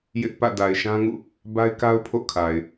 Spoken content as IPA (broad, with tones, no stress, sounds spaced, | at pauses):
j ɪ˦ ʔ p ä̰˦˨ d a˨ ɪ̯ ʃ ã˦ ŋ ṵ˦˨ | b a˦ ɪ̯ k a˦ ʊ̯ pʰ o̰˦˨ kʰ a˨ ɪ̯